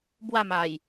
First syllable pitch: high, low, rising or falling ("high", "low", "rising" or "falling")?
falling